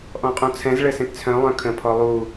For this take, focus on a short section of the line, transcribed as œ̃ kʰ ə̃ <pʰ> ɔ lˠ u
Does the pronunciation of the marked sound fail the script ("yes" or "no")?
no